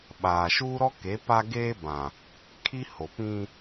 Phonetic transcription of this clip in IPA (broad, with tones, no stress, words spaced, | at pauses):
ɓaː˨ʃuː˦ ɾɔ˦ ke˨˦ pa˦ ɡeː˦ bã˨ | kʰi˦ ho˨pĩ˦